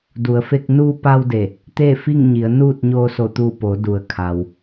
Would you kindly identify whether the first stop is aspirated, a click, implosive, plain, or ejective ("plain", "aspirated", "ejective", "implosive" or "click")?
plain